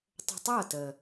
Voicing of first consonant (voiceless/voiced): voiceless